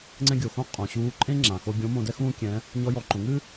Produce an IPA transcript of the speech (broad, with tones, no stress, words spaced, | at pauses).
ŋ͡ǀɛ̃˧ɡʲo˩xõ˧ qʼõ˩ɕuː˧˥ ǃʼẽ˥ŋ͡ǁã˩ xo˧ɡʲõ˧˥mõ˧dɛ˥ xũː˥kʲɛ̃˧˥ | ɲɔ˧˥jɔ˩˧ǃõ˩˧ ŋɨ˥